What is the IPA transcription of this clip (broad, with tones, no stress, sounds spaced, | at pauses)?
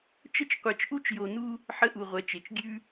t͡ʃ ə˥ t͡ʃ qʷ ɛ˧ t͡ʃ ʔ u˥ t͡ʃ j o˧ n u˥ | ħ ə˥ ʔ u˧ ʁʷ ɛ˧ t͡ʃ e˧ t͡ʃ ɡʲ ʉ˥